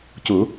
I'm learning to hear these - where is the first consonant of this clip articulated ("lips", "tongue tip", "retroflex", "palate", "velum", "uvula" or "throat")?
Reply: palate